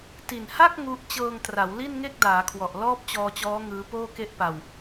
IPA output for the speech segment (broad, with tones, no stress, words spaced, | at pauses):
ti˨˩nha˥˩k̚ ŋu˦˥ʔ t͡ɕɤː˧ŋtra˩˦w li˥˩nŋe˥˩k̚daː˩˦kʰwɔ˨˩ʔ lɔː˥˩p̚t͡ɕɔː˧t͡ɕɔː˦˥ ŋɯː˦˥poː˥˩ke˥˩ʔpa˧w